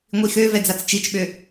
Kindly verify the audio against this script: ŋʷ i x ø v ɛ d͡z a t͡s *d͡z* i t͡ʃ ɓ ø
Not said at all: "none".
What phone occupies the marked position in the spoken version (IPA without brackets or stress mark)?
t͡ʃ